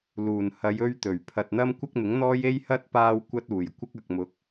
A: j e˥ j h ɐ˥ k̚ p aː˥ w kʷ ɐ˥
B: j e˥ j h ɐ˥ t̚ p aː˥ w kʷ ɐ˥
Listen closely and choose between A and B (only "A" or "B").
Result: B